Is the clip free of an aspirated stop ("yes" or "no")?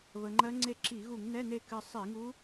yes